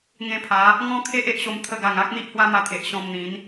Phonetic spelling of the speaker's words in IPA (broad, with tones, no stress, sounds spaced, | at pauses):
ŋ ẽ˧ pʰ a˨˦ | ŋ ɔ̃˦ kʰ e˦ ʔ e˦ ʔ ɕ o˧ m t̪ʰ ə˧ ɡ a˨˩ ŋ a˦ k̚ n̪ i˦ ʔ h w a˦ m a˧ t̪ʰ e˨ ʔ ɕ ɔ̃˧ m n̪ ĩ˨˦ n